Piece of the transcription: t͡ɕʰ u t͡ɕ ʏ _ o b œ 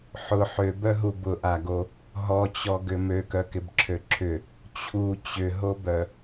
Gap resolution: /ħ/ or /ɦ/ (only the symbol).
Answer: ɦ